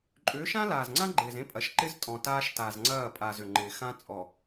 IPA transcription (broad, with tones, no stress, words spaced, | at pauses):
ǃʼʏː˨˦ʃã˦ laː˨zŋ͡ǀã˦ɡ͡ǃɪː˨z ẽ˦pʼɐ˨˦ʃ ǃɪ˦z tʼɔ̃˨taː˦ʃ ta˨zŋ͡ǀɐː˦˨pʼa˨z ʏ˨ŋ͡ǃɪː˨xã˦ t͡sʼɔ˨